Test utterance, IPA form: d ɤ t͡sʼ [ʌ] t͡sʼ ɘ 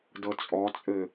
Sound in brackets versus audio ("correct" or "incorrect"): incorrect